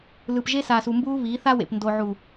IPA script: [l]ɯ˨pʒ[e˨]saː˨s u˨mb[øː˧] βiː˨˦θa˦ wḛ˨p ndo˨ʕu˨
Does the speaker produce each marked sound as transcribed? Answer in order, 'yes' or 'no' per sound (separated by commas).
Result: yes, no, no